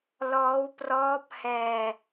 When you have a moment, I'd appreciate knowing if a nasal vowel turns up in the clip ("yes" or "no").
no